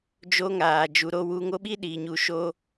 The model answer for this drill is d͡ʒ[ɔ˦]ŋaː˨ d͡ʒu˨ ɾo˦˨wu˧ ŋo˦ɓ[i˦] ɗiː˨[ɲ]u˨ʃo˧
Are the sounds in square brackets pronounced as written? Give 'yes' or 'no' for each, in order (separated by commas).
no, yes, yes